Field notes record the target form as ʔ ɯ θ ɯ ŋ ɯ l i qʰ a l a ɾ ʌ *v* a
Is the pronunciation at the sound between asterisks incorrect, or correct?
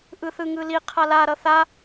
incorrect